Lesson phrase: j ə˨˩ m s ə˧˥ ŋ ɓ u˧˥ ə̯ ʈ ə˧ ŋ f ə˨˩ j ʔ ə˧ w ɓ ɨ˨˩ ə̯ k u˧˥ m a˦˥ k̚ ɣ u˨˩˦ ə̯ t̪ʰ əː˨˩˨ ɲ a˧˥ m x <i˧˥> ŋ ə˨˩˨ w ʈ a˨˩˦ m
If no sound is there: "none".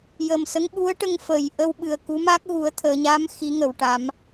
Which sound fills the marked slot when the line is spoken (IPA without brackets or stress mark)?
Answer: i˧˥